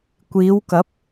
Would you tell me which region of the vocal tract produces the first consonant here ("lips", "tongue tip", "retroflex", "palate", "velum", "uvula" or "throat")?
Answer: velum